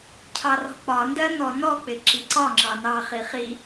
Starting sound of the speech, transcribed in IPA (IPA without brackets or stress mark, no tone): cʰ